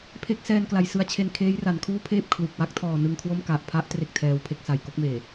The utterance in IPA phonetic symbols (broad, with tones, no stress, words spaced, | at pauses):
pʰe˦˥k̚ sɛː˧nkla˩˦j sɯ˦˥a̯t͡ɕʰe˧n kʰeː˦˥jra˩˦nkʰuː˥˩pʰeː˥˩p̚ kʰlu˨˩k̚ wa˥˩k̚tʰɔː˨˩ nɯ˧ŋkʰwo˥˩m ka˨˩ʔpʰa˦˥ʔ tre˥˩k̚tʰɛː˦˥wpʰe˥˩k̚sa˨˩j ko˥˩k̚meː˨˩